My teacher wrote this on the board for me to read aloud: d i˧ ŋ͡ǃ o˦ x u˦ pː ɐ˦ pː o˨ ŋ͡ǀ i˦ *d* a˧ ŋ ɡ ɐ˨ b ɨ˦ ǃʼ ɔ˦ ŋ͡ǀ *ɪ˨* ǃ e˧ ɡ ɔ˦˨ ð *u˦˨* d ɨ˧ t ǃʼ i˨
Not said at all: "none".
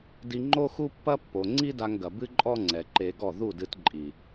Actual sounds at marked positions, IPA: d, ɛ˨, u˦˨

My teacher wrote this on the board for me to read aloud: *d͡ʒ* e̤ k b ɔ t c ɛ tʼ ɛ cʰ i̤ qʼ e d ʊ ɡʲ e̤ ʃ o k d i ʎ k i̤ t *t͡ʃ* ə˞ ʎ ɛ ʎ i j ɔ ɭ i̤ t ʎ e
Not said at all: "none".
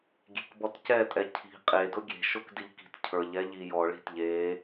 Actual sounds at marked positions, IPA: ɡʲ, cʰ

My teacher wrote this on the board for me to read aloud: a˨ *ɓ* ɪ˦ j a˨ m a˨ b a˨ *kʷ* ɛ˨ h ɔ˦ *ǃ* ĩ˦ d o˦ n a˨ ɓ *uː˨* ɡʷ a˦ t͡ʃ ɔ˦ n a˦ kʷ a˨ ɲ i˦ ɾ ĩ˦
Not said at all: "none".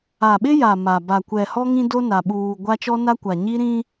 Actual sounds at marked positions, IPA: ɓ, kʷ, ŋ, uː˨

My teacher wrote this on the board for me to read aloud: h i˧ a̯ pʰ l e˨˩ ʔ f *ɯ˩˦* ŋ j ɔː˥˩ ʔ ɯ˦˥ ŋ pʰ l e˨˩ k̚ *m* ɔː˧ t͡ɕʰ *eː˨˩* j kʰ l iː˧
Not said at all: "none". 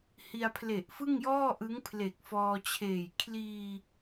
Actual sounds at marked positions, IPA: ɯ˥˩, f, eː˨˩

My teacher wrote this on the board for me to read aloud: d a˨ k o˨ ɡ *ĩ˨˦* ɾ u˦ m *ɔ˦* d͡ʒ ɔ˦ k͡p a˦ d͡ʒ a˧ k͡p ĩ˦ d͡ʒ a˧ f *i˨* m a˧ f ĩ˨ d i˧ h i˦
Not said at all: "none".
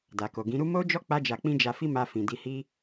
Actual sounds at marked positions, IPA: ĩ˨˦, o˦, i˦

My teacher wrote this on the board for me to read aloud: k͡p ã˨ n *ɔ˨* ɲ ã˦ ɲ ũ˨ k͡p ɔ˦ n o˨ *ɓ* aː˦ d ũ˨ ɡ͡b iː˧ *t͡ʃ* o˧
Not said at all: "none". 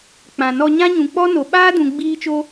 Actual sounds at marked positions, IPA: ɔ˧, ɓ, t͡ʃ

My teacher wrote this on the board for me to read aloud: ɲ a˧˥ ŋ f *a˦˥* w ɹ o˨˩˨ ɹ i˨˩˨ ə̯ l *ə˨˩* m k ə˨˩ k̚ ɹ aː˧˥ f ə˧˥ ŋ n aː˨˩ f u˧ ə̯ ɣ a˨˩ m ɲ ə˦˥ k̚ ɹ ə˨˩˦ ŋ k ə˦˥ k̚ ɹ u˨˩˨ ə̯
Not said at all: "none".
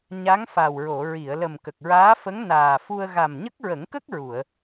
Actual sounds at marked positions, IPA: a˨˩, ə˨˩

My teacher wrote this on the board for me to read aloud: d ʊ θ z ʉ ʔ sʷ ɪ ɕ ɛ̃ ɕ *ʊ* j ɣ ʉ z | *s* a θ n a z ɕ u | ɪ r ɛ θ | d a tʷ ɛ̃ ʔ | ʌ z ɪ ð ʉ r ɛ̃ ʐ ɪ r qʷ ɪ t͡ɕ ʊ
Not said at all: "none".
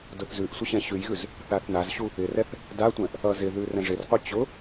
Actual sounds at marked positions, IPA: ʉ, θ

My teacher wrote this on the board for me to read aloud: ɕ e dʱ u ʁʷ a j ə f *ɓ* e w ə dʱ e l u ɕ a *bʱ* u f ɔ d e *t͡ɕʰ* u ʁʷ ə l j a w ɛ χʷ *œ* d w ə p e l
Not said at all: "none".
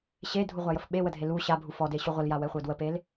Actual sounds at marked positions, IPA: ɓ, bʱ, ɕ, œ

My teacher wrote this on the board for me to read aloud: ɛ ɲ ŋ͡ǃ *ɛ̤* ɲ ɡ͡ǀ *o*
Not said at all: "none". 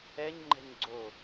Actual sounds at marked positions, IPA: ɛ̤, o

